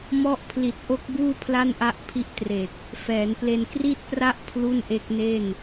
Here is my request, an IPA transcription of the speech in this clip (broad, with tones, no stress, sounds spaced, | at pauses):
m ɔ˦˥ ʔ pʰ l i˨˩ t̚ ʔ o˦˥ k̚ b uː˥˩ pʰ l a˥˩ n ʔ a˦˥ ʔ pʰ i˦˥ ʔ t r e˨˩ k̚ | f ɛː˩˦ n p l e˧ n k r i˥˩ t̚ p r a˥˩ ʔ pʰ l u˥˩ n ʔ e˦˥ k̚ n e˥˩ n